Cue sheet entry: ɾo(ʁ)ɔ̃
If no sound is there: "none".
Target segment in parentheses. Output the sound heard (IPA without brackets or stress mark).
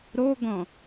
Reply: ɡ